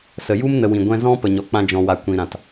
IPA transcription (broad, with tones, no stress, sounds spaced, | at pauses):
s ə˨ j u˦ m n ə˧ w ĩ˨ ɡʷ ɛ̃˦ z ɔ̃˦ p ə˨ ɲ ɔ˨ k͡p ã˧ d͡ʒ ɔ̃˨ w a˨ kʷ ĩ˨ ɾ ã˨ t